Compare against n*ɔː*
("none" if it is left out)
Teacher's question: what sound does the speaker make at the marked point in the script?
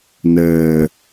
əː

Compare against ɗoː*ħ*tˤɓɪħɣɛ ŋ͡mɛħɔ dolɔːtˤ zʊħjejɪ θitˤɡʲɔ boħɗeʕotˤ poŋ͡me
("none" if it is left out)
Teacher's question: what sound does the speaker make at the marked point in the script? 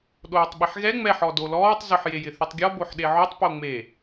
none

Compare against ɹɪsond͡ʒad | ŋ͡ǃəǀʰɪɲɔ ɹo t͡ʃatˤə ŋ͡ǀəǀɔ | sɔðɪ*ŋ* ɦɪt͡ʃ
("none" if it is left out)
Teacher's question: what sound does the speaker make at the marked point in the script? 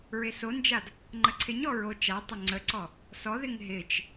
ŋ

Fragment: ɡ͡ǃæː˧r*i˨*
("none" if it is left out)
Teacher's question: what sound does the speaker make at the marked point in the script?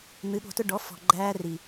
i˨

